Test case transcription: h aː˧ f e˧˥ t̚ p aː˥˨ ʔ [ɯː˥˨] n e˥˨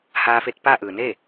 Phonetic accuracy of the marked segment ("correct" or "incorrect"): incorrect